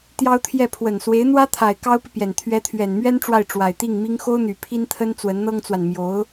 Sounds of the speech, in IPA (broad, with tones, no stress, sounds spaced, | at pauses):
t̪ j ɑ˥ ʊ̯ t̪ʰ j ɛ˥˩ pʰ w ə˨˩ n s w e˧˥ ɪ̯ n̪ w ä˥ t̪ʰ a˨˩ ɪ̯ k ɑ˥ ʊ̯ p i˨ p j ɛ˨˩ n t̪ʰ ɥ ɛ˧˥ t̪ʰ ɥ ɛ˨˩ n m ɥ ɛ˥ n ʈ͡ʂ w a˥˩ ɪ̯ ʈ͡ʂ w a˨˩ ɪ̯ t̪ i˥˩ ŋ m i˥ ŋ x o˥ ʊ̯ n̪ y˨˩ pʰ i˥ n t̪ʰ ə˥ n t͡s w ə˧˥ n n̪ ɤ˥ ŋ t͡s w a˨ n m j o˧˥ ʊ̯